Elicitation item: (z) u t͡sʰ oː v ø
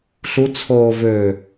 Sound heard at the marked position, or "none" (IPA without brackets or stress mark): ɬ